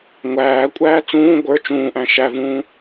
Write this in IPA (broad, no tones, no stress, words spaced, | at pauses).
ŋʷæːkʷʼæː t͡sũː ɡʷə˞ t͡ʃũːʔæ̃ ʃævũː